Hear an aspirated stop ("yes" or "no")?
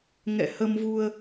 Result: no